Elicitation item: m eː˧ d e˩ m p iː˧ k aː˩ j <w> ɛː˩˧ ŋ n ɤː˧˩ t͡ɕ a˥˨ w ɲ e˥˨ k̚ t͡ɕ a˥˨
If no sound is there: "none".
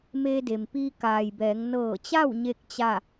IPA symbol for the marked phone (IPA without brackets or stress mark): b